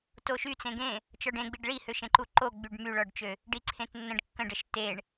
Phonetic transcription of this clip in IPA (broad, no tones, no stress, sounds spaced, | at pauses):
t o ʃ y t͡s ẽ ɡ ẽ | t͡ʃ ɔ ɖ ẽ ɡ͡b i ɖ ɭ i h ø ʃ ẽ ǃ u ǃ o ɡ͡b y ɖ m y ɭ ɔ ɖ t͡ʃ ø | ɖ i ǀʰ ẽ t nː ə̃ ɖ kː ə̃ ɖ ə ʃ t e ɳ